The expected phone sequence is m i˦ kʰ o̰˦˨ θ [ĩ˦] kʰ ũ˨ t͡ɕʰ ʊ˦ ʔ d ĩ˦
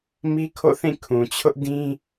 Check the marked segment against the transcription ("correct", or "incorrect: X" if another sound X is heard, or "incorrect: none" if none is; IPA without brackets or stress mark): incorrect: ĩ˦˨